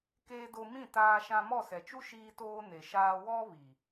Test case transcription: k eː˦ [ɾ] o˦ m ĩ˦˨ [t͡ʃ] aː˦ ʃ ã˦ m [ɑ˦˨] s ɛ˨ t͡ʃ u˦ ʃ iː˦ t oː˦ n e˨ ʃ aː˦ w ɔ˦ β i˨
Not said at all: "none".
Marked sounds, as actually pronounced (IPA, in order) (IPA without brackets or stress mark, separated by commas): d, t, ɔ˦˨